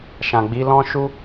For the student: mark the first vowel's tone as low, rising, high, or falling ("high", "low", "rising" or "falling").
low